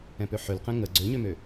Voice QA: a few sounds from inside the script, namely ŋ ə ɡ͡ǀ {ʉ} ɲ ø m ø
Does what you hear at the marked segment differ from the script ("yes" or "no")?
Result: yes